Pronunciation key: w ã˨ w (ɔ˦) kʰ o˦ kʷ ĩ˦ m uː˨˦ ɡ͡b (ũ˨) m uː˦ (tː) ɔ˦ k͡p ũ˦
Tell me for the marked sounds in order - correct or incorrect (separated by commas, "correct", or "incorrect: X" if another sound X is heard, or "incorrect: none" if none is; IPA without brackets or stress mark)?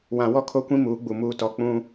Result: correct, incorrect: u˨, incorrect: t